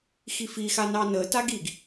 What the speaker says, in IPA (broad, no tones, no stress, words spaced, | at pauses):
xifixa nɑnətaɡ iɡ